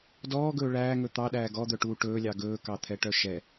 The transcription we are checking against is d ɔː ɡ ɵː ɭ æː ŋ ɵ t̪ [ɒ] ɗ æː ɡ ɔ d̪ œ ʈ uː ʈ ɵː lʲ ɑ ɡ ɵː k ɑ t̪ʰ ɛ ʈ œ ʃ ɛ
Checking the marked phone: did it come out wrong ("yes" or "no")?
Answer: yes